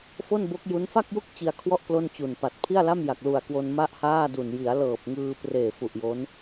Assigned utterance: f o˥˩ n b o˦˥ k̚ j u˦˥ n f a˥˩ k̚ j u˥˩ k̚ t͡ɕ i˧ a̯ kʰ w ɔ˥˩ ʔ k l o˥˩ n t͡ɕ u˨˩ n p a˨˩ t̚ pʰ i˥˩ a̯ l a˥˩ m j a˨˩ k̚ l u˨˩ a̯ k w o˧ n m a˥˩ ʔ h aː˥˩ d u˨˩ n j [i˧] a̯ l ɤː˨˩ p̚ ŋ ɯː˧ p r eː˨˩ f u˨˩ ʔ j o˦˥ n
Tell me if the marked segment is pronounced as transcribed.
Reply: no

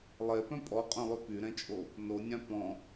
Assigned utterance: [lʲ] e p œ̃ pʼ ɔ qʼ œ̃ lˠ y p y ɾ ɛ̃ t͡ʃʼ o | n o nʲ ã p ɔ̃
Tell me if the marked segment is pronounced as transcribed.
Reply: no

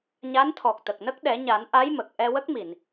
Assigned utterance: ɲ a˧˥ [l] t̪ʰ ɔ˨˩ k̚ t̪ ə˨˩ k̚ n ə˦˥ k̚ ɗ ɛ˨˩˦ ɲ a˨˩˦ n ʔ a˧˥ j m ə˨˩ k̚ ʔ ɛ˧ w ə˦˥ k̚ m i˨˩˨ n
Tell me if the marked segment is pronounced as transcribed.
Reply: no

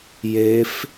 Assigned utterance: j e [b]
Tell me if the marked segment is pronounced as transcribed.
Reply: no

